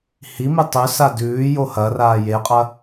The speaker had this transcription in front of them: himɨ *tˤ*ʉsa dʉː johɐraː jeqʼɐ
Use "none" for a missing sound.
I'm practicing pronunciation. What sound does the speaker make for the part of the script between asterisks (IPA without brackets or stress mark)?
tˤ